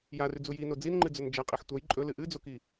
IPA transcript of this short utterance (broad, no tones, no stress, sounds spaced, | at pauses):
j a r ʉ d͡z u j i n o d͡z i n ŋ͡ǃ ɨ d͡z ɵ n d͡ʒ a qʼ i ħ tʷ ɐ j ǃʼ ɵ l ɨ ʔ ɨ d͡z o k i